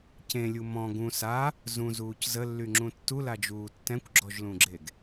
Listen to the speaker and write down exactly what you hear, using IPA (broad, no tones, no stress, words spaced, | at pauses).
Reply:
cẽlʲu mɔ̃ ɡũ sa | zũzuːc zəlːyŋ͡ǁũ tːulad͡ʒuː tːɛ̃kʷɡ͡ǁɔʒlũɡ͡ǁeɡ